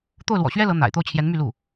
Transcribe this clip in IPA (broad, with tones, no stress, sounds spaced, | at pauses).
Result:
t̪ o˥˩ ʊ̯ l w ɔ̰˨˩ ɕ ɥ ɛ˥ l ɤ˧˥ n̪ a̰˨˩ ɪ̯ t̪ o˥˩ ʊ̯ t͡ɕʰ j ɛ˧˥ n m y˥˧ l u˥˩